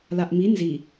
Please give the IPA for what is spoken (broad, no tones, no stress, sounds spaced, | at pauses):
l a ʔ m i n z i